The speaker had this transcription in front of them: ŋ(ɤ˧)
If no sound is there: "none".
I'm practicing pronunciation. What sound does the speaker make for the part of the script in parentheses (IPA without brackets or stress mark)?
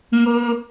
ɤ˧